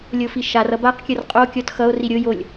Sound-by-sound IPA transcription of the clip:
lʲ o f i ʃ a r ʌ b a q kʲ ʌ r qʼ o kʲ ɔ t x ʌ o̯ r i ɾʲ o j o lʲ

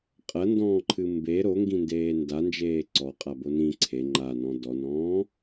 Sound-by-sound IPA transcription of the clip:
qʼ ɐ n d ɔ̃ː ǃʰ ɨ m b e ɾ o ŋ ɡ ĩ n d eː n d a n d͡ʒ eː ǀ ɔ qʼ a b o n ĩ ǀʰ e ŋ͡ǃ a n ɔ̃ d ɔ n ɔ̃ː

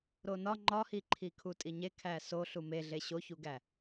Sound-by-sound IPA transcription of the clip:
ɾ o n ɒ ŋ͡ǃ ɒ h i ǃʰ i kʰ u tʼ i ɲ e kʰ æ s o ɬ u m e ɮ e ɕ o ç u ɡ æ

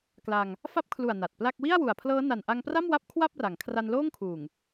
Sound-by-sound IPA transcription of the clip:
k l a˧ ŋ | f a˦˥ p̚ kʰ l u˨˩ a̯ n a˨˩ t̚ p l a˥˩ k̚ w i˥˩ a̯ w u˨˩ a̯ pʰ l ɤː˦˥ n a˨˩ n ʔ a˧ ŋ p r a˥˩ m w a˦˥ p̚ kʰ w a˥˩ p̚ r a˩˦ ŋ kʰ r a˧ n l oː˥˩ ŋ kʰ uː˨˩ ŋ

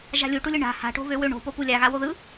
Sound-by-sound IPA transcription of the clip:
ʒ a̤ lʲ u ʈ u lʲ ɯ ɳ a̤ h a̤ ʈ o̤ β ø w ø ɳ o̤ p o p u lʲ a ɣ a w o ð ɯ

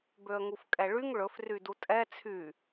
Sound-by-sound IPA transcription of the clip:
b ø ə̯ ŋ u f kʼ ɛ ɭ y ŋ ɭ ɵ f r y d u tʼ ɛ t͡sʰ y

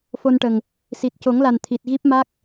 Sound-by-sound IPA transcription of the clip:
f o˧ n ʈ ə˨˩ ŋ | s i˨˩ t̚ c o˨˩˦ ŋ l a˨˩ n t̪ʰ i˨˩ t̚ ɣ i˦˥ p̚ m a˦˥ k̚

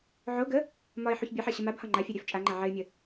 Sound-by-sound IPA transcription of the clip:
ʕ o ɡ ə | m ɒ ɪ̯ ħ u ç bʲ ɘ ħ ɜ ɕ ə m a b h ɒ ŋ͡ǃ a fʲ ɜ ɾʲ œ f t͡ʃʼ a ŋ͡ǃ a ʕ ɘ ɪ̯ mʲ ə

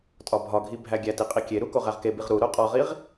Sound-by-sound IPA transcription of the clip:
tʼ ɒ bʱ ɒ ɡʱ i bʱ æ ɡʲ æ t i qʼ i kʲ e ɾ u k o ʁ æ ʁ k e b i ʁ ɾ u ɾ o qʼ ɒ ʁ i ʁ

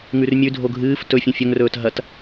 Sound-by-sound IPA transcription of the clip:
ŋ ʉ r mʲ ʉ dʱ o ɡʱ ɨː f t ɵ fʲ ũ fʲ ɵ ŋ r ɵː t ɦ ɐ t

